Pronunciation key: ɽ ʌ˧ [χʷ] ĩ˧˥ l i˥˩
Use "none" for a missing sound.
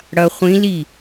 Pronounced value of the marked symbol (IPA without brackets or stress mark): χʷ